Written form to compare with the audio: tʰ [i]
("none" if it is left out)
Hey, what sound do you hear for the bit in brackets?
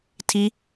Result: i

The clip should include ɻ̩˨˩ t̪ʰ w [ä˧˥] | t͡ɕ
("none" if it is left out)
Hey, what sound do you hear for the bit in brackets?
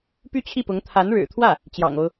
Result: ä˥˩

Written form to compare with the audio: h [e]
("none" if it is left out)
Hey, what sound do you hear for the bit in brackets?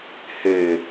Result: e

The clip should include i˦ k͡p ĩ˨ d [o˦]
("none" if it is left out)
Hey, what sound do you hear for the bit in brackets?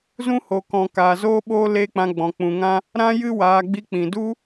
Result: u˦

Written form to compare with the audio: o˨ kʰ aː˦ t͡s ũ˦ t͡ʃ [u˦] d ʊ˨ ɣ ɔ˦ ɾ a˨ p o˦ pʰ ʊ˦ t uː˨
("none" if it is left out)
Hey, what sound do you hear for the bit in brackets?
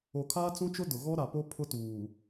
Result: ʊ˦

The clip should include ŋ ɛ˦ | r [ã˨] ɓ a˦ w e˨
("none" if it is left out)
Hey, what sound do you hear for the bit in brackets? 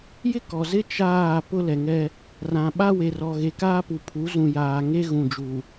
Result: ã˨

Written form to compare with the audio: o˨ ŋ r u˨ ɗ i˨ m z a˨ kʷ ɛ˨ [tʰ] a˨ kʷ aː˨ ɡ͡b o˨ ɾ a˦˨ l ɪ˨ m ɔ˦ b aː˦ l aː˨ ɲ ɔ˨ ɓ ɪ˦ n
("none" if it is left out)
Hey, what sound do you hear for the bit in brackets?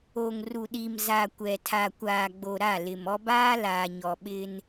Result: tʰ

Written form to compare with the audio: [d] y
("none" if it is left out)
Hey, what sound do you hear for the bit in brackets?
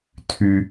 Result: tʰ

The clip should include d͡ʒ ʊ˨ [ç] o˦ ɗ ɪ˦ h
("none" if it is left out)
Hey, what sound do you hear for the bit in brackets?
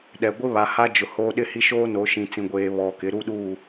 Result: h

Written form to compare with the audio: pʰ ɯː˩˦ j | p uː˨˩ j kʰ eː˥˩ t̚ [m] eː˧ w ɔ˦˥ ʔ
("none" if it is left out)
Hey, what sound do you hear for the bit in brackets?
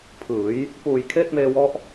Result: m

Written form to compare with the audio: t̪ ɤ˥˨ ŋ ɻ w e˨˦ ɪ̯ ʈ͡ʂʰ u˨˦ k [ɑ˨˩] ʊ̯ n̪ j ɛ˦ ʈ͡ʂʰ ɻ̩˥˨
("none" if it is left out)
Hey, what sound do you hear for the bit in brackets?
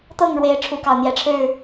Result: ɑ˨˩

